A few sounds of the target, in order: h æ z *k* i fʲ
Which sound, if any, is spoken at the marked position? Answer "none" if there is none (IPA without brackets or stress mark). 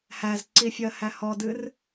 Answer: ǀ